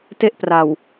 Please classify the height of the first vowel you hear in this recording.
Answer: mid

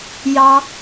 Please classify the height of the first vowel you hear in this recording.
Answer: low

